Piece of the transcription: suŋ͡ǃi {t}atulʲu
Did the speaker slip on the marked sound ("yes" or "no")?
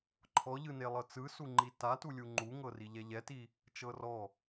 no